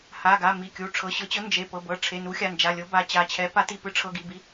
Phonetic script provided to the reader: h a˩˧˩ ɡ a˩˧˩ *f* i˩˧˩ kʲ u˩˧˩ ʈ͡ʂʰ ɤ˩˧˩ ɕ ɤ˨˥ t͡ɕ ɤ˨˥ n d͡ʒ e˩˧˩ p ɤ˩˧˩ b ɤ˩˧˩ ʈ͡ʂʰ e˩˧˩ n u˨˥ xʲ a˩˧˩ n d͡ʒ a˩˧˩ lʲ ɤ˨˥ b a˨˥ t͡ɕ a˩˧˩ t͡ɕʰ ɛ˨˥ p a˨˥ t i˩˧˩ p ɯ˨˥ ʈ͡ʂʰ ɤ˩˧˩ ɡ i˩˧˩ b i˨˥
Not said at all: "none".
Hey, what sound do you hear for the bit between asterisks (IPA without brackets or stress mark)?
m